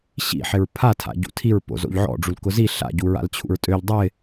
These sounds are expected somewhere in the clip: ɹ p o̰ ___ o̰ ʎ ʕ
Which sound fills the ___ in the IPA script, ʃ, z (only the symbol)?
z